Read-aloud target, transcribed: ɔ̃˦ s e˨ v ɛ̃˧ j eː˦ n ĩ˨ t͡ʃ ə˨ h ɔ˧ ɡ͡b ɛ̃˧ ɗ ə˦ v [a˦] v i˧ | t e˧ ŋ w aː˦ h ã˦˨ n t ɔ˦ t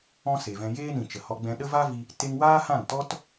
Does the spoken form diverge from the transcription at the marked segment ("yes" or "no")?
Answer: no